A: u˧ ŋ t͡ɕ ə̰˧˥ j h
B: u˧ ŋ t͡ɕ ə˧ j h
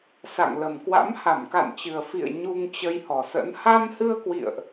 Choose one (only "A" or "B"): B